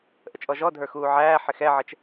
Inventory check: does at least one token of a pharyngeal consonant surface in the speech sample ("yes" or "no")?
yes